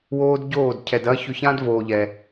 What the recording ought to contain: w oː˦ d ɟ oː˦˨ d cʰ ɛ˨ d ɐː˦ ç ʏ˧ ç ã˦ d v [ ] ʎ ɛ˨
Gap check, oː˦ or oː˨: oː˨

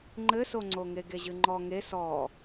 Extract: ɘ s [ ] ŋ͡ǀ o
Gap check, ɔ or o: o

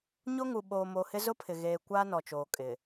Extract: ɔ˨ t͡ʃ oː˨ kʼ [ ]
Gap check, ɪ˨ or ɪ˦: ɪ˨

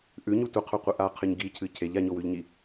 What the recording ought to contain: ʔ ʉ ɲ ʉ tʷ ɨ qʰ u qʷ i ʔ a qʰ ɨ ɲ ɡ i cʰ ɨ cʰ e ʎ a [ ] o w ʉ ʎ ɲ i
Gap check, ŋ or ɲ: ɲ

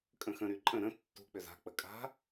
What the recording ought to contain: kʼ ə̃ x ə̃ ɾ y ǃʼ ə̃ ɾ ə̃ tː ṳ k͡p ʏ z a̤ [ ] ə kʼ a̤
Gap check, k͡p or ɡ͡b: k͡p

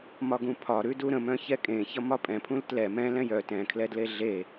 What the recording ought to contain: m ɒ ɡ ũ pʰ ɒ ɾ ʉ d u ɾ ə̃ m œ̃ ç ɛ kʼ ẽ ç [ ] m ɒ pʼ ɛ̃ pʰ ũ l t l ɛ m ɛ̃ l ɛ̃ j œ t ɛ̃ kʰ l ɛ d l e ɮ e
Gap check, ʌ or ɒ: ʌ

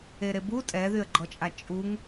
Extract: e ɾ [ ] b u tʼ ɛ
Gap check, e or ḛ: e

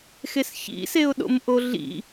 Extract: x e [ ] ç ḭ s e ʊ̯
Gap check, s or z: s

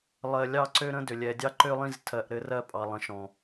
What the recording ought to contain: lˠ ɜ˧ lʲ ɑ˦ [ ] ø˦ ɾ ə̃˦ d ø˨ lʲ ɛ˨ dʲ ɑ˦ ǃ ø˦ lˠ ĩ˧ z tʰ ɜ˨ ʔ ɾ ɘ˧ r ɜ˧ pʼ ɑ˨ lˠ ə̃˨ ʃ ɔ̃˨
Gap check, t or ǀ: ǀ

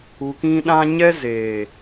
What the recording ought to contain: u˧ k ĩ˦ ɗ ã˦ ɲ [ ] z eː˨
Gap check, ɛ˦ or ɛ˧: ɛ˦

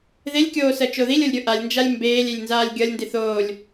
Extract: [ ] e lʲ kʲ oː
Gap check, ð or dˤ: ð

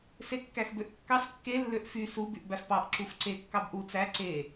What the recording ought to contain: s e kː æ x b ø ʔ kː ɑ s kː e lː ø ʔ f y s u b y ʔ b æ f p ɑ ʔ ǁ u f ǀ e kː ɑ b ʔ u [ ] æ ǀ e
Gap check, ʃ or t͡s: t͡s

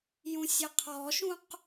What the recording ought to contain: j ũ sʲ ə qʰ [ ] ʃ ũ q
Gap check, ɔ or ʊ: ɔ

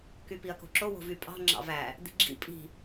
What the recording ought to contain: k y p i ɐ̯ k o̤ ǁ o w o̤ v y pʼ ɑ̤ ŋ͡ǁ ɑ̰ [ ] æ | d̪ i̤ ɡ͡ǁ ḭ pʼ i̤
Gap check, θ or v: v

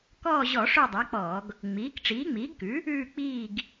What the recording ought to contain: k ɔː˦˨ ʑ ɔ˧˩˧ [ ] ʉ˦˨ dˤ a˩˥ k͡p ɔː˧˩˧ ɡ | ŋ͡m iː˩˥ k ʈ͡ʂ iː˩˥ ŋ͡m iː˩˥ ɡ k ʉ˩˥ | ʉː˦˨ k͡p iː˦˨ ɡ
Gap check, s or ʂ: ʂ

